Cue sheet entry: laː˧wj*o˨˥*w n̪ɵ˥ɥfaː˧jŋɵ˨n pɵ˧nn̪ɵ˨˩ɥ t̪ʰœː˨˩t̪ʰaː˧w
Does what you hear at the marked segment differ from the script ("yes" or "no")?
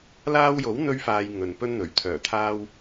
no